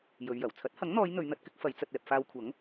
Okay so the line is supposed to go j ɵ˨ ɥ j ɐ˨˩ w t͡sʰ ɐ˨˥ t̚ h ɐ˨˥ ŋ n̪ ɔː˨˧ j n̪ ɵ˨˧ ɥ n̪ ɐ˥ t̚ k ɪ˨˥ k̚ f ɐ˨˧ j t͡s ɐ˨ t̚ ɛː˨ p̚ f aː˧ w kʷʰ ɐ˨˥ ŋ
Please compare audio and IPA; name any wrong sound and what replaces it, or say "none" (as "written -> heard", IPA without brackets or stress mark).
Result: none